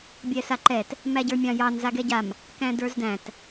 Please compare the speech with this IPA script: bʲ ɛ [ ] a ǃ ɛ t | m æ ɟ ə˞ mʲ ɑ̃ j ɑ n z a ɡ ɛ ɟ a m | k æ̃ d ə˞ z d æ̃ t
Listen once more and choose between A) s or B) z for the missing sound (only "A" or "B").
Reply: A